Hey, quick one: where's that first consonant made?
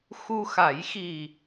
velum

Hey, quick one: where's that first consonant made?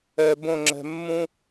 lips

